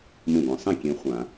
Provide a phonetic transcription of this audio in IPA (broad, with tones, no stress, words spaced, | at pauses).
mũ˥˩ɡʷɐ̃˨˦ sˤĩ˥˩kʲẽ˨˦ χʷã˧˩˧